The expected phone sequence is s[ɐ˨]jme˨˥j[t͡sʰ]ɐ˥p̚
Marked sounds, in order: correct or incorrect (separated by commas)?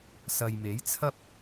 correct, correct